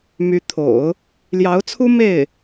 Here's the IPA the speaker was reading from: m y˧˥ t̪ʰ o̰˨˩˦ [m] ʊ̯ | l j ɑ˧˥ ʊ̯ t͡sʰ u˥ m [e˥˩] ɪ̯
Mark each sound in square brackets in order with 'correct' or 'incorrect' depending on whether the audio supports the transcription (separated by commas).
incorrect, correct